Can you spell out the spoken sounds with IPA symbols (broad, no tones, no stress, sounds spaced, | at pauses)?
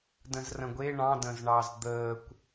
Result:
d ə̃ z r ə̃ ɡʷ e ɳ ɑ̃ d ə̃ z ɳ ɑ z d̪ əː kʷ